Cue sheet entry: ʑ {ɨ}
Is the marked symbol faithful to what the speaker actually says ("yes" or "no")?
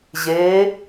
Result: no